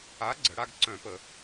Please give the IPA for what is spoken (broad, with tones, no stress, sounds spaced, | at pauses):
a˨˥ ɡ͡ǀ ə˩˧ ɽ a˦˨ ɡ ǀ œ̃˧˩˧ p ə˧˩˧